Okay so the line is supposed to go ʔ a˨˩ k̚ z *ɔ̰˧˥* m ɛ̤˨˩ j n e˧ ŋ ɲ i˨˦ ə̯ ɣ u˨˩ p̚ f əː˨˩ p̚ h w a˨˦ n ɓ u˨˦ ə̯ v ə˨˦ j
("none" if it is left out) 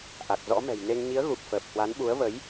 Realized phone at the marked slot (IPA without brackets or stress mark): ɔ̰˧˥